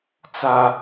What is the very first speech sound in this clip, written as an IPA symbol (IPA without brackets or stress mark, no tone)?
t͡s